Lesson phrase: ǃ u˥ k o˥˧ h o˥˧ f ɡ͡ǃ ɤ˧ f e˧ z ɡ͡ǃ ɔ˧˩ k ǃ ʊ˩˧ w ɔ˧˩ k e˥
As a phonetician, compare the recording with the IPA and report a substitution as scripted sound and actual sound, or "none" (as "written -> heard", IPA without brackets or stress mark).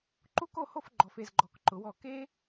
ɤ˧ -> ɔ˧